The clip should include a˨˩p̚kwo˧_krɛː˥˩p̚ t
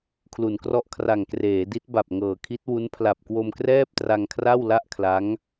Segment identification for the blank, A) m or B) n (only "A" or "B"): A